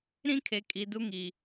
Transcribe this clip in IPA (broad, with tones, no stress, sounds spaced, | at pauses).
ɾ ĩ˦ kʰ e˨ kʼ i˨ d u˦ ŋ i˨